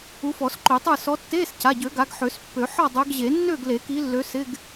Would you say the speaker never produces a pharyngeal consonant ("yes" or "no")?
no